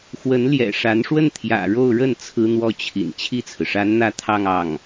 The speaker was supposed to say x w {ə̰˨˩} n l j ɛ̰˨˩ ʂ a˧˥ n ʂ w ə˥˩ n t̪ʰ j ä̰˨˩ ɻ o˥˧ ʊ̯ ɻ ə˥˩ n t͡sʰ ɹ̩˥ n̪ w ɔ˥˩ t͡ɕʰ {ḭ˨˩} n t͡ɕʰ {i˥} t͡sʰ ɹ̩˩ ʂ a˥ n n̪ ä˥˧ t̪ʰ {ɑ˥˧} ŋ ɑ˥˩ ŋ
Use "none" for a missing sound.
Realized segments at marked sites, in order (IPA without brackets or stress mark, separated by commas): ə˧˥, ḭ˨˩, i˥˩, ɑ˥˧